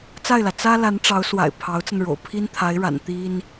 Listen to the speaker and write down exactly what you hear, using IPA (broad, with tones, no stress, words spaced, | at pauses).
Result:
t͡sa˥˩ɪ̯lä˩ t͡sä˥ la˧˥nʈ͡ʂɑ˧˥ʊ̯swa̰˨˩ɪ̯ pʰɑ˧˥ʊ̯t͡sə˧nɻo̰˨˩ʊ̯ pʰi˥nt̪ʰa˧˥ɪ̯ɻa̰˨˩n t̪i˥n